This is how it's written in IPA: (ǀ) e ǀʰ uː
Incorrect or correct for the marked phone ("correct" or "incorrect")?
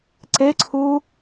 correct